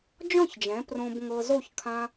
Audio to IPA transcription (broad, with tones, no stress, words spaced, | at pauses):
d͡ʒɔ̃˥˨çd͡ʒɛ̃˩˥ prõ˧bŋɤ˧zo˥˨ç kʰã˧